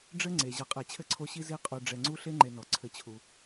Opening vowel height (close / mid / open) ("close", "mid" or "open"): mid